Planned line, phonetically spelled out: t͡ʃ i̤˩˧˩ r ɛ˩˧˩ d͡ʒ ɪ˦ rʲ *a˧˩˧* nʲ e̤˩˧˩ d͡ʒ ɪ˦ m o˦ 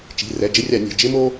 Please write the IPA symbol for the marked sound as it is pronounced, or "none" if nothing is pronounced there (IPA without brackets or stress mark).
a˧˩˧